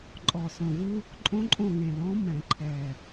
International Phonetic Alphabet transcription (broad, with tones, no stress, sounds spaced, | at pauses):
ǃʼ ɔ˨˩ s õ˨˩ v ɯ˦ | ǃʼ õ˦ ǃʼ õ˦˨ ŋ ẽ˨˩ l ɔ̃˨˦ m ɛ̃˨˩˦ ǃʰ ɛ˨˩